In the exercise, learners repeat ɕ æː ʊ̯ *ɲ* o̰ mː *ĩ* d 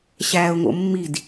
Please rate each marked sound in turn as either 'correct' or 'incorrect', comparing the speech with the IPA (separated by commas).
incorrect, incorrect